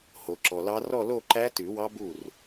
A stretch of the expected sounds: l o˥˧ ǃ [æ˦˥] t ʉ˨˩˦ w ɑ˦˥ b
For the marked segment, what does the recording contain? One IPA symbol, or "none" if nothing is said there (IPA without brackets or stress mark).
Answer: æ˦˥